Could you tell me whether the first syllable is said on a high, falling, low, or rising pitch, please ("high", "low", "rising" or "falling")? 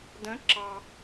rising